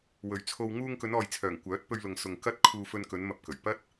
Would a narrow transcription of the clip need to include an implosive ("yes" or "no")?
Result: no